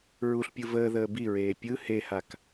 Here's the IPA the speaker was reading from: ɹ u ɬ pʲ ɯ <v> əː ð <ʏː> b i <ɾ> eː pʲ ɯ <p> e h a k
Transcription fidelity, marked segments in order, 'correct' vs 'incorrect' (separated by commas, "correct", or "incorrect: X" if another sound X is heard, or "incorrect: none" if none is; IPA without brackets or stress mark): correct, incorrect: əː, incorrect: ɹ, incorrect: h